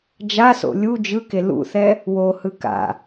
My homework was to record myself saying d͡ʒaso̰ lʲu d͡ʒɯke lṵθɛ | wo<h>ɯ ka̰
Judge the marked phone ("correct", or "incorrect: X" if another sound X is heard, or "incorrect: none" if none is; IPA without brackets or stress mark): correct